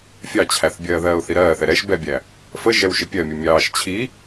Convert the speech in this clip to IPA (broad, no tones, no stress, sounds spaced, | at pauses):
fʲ ɑ t͡ɕʰ æ θ bʲ ɜː ð ɜː ʊ̯ θ i ɾ ɜː θ ɛ ɾ ɛ ʃ b ɛ bʲ æ | f ə ʒ ɛ w ʃ ɪ pʲ ɜ mʲ u mʲ ɑː ʃ t͡ɕʰ i